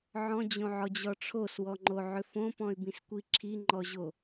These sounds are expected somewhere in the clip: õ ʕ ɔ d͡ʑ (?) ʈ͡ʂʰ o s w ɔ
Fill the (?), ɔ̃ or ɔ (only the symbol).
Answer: ɔ